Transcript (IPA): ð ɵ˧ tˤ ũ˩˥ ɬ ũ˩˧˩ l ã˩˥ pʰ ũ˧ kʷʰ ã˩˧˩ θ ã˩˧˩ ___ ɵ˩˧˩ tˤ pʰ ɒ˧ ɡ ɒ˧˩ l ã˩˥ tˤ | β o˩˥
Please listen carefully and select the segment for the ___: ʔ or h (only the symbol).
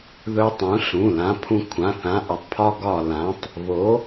ʔ